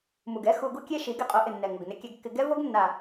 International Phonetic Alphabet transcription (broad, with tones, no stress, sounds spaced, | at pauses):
m u˨ ɡ ɛ˦ x u˧ ɡ u˦ kʲ e˦ ʃ i˨˦ ɡ ɛ˧ qʼ o˨˦ ʔ ɪ˨ nː ɛ˨ ŋ o˨ ɡ n ɪ˧ kʲ ɛ˧ ɡ kː ɪ˧ ɡ ɛ˦ v o˦ ɡ nː a˨